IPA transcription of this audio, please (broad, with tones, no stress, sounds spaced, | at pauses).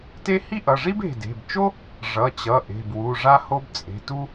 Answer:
t e˥ h i˥ ʔ ʌ˩˧˩ ʐ i˥ b e̤˩˧˩ d e̤˩˧˩ b t͡ʃ o˥ | ʐ ʌ˩˧˩ t͡ɕ ʌ˩˧˩ ʔ e̤˩˧˩ b w u˩˧˩ ʐ a˥ h o˥ b t͡sʼ e̤˩˧˩ t u˥